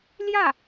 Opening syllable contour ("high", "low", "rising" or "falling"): falling